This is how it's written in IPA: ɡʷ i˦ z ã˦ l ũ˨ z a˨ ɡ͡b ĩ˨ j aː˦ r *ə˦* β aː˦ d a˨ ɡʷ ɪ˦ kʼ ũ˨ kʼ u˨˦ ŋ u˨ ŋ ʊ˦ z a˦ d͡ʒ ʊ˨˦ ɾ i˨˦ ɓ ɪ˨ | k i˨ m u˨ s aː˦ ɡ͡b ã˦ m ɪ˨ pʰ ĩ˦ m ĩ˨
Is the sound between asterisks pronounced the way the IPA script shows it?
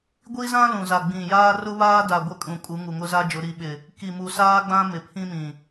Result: no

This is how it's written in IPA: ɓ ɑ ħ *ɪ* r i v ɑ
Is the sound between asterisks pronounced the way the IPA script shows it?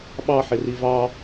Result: yes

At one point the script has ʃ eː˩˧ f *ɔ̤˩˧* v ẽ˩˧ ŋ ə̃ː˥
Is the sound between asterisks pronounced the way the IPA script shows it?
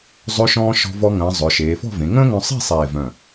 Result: no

